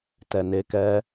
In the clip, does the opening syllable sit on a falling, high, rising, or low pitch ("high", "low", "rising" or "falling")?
low